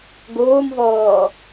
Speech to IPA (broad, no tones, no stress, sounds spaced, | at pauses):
ɡ oː m v ɔː